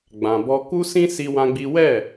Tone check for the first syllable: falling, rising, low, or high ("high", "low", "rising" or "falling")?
low